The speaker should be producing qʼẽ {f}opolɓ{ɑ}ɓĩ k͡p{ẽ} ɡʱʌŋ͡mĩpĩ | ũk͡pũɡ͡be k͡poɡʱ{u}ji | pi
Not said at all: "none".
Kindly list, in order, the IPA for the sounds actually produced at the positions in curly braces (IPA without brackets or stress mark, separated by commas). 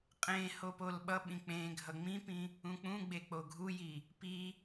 h, ʌ, ẽ, u